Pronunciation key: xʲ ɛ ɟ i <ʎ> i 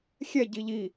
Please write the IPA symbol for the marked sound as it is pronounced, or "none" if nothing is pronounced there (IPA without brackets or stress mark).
ʎ